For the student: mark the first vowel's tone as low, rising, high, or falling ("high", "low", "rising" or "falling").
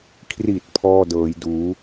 low